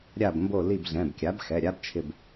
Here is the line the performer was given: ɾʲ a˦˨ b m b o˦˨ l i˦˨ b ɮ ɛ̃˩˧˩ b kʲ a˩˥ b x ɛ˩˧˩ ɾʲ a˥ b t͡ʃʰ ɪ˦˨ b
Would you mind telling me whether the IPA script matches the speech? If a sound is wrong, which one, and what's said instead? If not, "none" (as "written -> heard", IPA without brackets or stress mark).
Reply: none